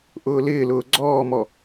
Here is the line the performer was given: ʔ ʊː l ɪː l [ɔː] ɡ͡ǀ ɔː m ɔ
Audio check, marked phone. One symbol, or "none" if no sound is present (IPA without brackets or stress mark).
ʊː